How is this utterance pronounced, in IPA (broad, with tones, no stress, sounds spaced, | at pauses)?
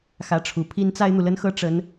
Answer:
x ä˧˥ ʈ͡ʂʰ u˨˩ pʰ i˥ n t͡s a˥ ɪ̯ n̪ u˨ l ə˥ n x ɤ˥ ʈ͡ʂ ə˥ n